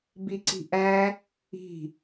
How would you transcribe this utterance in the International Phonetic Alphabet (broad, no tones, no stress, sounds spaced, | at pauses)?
b i ǀ i̤ ʔ æ | i̤